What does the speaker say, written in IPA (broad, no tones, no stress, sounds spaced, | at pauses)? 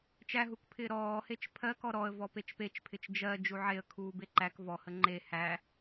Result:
t͡ʃ æ ɦ u k pʰ ɪː ɾ ɔː h e t͡ʃ pʰ ɜ k ɔ ɾ ɔ ə̯ v ɔ p e t͡ʃ p e t͡ʃ pʰ ɪ t͡ʃ d͡ʒ ɜ d͡ʒ u ʕ e ə̯ kʰ uː b e ǃ æ k v ɔ h ə ŋ͡ǃ e h æ